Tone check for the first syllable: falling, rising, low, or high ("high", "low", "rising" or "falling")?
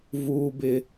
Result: high